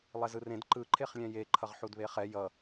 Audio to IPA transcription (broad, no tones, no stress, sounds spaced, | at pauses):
lˠ ɛ z ɯ r ẽ d ǃ ɯ ǃʰ e χ lʲ ɛ̃ j e ǃʰ ʌ ʁ ħ u d β e χ ɛ j ʌ